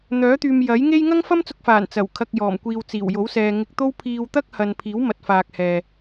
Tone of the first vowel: rising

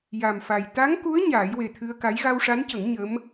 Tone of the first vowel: low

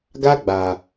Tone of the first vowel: high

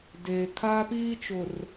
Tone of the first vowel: low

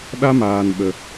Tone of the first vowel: high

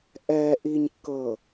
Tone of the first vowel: low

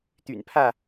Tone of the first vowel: low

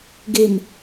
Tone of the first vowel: low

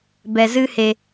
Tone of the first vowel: low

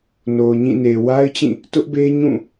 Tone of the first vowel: low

